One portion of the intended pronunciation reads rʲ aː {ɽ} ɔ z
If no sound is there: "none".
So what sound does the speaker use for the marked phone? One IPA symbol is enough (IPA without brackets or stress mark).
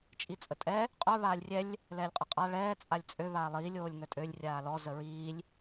l